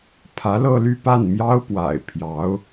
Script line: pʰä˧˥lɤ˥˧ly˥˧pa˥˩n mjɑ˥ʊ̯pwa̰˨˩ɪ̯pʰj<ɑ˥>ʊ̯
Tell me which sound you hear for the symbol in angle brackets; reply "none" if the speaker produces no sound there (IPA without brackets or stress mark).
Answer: ɑ˧˥